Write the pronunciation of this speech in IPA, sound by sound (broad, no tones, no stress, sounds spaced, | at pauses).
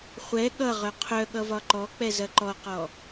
χʷ ɛ ɠ ʌ ʁ œ qʰ œ ɠ ʌ v ɒ ǃ ɔ k͡p ɛ z ɐ ǃ ɔ q ɔ